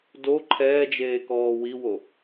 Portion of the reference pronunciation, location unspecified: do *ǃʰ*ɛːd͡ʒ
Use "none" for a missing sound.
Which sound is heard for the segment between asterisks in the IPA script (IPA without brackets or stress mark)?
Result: ǃʰ